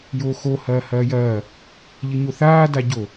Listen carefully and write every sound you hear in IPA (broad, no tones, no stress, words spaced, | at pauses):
joːxo hɐːhɐːjɐː | ʎɘɲoθaː daɟo